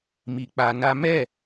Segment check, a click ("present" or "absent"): absent